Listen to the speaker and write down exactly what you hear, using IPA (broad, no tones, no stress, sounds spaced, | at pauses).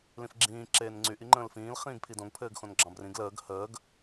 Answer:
l ĩ f ɡ͡ǁ ĩː ǁ eː n ŋ͡ǀ y ʔ i ŋ͡ǃ ə̃ː l f ĩː l χ ĩː ɡ pʰ i d õ ɡ pʰ ɘː ɡ x õ n ɡ͡ǁ ɑ̃ b r ĩ ɡ l əː ɡ h əː ɡ